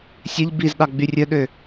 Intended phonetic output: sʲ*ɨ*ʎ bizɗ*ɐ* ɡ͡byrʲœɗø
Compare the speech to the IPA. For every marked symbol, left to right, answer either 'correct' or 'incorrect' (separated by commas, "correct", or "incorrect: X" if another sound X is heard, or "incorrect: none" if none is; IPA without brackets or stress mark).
incorrect: e, incorrect: ɑ